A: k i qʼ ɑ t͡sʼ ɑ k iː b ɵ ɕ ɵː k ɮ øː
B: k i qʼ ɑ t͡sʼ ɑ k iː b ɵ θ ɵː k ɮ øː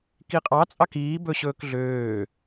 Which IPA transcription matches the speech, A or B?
A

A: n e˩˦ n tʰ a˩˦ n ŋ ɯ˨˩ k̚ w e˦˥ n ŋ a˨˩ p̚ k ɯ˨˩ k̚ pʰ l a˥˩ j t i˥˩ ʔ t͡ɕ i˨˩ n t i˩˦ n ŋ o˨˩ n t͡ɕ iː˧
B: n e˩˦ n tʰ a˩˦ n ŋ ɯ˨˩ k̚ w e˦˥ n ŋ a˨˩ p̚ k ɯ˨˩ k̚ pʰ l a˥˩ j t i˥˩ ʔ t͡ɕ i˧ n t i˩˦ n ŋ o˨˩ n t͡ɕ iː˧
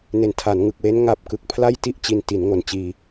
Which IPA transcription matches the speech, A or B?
A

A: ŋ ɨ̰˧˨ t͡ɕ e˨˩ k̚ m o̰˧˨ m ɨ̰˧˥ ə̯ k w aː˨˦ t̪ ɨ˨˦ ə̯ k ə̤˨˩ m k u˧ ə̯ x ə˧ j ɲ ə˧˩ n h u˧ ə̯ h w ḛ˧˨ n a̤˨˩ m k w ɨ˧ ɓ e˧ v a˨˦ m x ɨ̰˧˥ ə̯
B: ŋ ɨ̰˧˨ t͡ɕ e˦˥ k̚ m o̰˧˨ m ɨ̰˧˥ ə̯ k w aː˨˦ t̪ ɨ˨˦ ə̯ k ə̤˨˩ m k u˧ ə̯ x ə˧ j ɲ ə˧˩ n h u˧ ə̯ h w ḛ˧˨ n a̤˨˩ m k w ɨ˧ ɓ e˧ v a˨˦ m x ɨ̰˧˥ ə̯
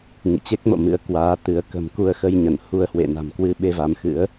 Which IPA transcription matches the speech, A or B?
B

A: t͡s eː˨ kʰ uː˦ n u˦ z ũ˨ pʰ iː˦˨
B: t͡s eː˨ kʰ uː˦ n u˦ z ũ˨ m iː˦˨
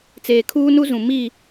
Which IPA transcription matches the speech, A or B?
B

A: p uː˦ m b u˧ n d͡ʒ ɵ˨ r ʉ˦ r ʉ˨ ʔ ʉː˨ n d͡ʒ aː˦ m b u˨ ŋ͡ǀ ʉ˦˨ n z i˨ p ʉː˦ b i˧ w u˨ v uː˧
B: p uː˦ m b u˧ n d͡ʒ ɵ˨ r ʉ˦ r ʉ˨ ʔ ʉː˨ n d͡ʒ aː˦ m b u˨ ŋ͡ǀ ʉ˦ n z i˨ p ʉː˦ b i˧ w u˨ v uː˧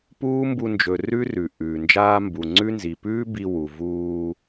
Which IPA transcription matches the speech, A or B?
B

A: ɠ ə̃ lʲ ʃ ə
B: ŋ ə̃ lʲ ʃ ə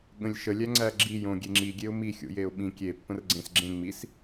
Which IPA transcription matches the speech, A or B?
A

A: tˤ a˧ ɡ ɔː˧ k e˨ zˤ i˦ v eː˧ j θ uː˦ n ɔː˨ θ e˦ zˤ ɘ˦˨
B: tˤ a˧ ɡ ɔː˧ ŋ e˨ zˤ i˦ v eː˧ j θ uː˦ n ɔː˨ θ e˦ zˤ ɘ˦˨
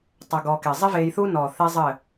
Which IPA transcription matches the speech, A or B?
A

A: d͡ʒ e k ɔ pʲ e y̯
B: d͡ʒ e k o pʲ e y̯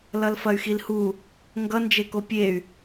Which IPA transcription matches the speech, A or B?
B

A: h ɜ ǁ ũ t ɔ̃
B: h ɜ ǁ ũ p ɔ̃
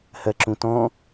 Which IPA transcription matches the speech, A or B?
A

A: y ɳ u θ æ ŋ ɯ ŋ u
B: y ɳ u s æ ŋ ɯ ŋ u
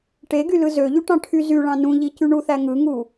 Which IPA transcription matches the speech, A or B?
A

